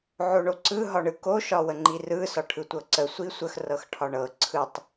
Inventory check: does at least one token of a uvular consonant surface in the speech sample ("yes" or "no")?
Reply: no